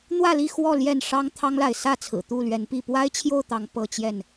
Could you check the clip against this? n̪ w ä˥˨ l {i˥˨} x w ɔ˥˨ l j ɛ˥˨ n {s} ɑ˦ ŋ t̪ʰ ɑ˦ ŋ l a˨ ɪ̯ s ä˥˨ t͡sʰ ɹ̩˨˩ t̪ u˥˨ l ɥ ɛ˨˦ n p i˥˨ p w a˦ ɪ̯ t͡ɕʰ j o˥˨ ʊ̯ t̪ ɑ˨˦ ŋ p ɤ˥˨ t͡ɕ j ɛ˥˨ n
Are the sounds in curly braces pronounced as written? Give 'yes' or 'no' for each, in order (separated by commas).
yes, no